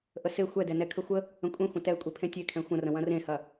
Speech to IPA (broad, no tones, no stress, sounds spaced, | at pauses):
ʔ ə s e xʷ ɛ d ɛ n ɛ kʰ ə xʷ ə | ə̃ kʷʼ ẽ xʷ ə̃ t ɛ kʷʼ e pʰ ẽ tʲ e kʰ ɛ̃ xʷ ə̃ r ə̃ w ɐ̃ r ẽ h ɐ